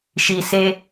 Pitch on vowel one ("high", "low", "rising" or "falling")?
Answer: low